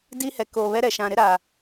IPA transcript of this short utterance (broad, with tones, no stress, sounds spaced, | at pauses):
d iː˦ h ɛ˨ k oː˨ β ɛ˦ ɾ ɛ˨ ʃ ã˨ ɾ ɪ˦ ɾ a˨